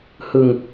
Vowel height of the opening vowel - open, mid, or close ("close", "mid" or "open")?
close